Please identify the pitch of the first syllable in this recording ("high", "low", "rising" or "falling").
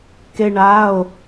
high